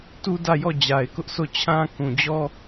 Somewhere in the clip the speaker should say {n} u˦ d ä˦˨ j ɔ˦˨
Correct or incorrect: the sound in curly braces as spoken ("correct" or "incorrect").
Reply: incorrect